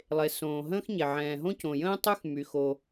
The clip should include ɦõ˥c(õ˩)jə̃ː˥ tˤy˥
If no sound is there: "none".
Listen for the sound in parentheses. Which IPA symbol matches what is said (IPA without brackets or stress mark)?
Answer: õ˩